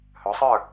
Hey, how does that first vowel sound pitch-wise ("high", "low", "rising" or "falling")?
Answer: rising